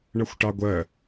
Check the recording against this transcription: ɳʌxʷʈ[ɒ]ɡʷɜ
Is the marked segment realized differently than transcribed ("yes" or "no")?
yes